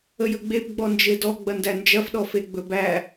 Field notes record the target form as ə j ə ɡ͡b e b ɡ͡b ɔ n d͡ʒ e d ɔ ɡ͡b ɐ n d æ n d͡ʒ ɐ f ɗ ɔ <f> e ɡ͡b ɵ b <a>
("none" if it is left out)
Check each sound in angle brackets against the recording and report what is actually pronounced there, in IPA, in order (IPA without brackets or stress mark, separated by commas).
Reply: f, æ